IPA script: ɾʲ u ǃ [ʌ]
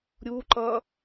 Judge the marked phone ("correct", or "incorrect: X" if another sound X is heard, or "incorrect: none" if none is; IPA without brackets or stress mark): correct